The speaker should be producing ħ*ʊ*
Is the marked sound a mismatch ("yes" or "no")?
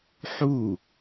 yes